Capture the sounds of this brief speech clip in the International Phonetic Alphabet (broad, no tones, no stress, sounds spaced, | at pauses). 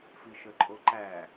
f i ʃ ə ǃʼ o ǃ æ